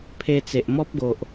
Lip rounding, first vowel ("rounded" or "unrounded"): unrounded